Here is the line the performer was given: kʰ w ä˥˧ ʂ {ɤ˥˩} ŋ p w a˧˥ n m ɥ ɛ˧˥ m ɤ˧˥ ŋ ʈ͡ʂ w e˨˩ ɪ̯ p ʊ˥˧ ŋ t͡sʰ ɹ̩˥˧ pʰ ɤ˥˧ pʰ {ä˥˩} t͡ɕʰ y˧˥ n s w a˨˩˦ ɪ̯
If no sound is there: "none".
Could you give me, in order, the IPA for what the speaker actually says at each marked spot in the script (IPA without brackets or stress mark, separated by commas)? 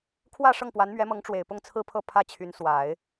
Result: ɤ˥˩, ä˥˩